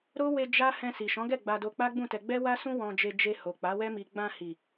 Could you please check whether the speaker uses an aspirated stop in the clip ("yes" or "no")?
no